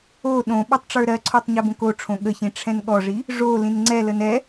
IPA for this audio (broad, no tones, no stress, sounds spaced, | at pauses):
o ɗ õ ɓ o tˤ ʈ͡ʂ ə˞ ɾ ɜ ǀʰ o tˤ ɲ ɛ b õ k o ʈ͡ʂʰ õ ɠ ə ç ĩ ʈ͡ʂʰ ɛ̃ n ɠ ɔ ʐ i | ʐ o l ĩ n ŋ͡ǀ ɛ l ə n ɛ